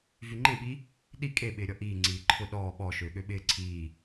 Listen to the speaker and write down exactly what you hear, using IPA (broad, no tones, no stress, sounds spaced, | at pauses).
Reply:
v y ŋ͡ǃ ẽ ɓ i | ɗ i kʼ e ɓ ɪː ɾʲ ɔ ʔ iː ŋ͡ǀ iː ǃʰ ʊ ɗ ɔː ɓ ɔ ʃ øː ɠ ø ɓ ɪː ǀʰ iː